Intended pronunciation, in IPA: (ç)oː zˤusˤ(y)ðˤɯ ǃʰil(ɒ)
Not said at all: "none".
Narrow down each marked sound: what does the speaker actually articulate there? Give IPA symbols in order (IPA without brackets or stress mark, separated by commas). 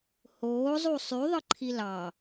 h, y, ɑ